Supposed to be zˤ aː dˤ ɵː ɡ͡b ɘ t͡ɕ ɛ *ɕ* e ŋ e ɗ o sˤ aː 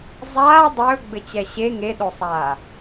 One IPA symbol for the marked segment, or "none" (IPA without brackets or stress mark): ɕ